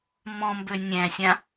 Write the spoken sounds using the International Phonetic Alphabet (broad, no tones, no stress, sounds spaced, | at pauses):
m ɔ̃ m b ø nʲ æ̃ sʲ ã